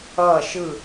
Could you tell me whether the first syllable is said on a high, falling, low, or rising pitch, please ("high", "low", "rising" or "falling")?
falling